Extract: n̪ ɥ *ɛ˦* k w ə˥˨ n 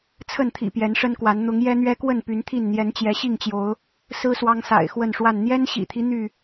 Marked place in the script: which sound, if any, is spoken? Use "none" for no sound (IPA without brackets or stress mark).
ɛ˦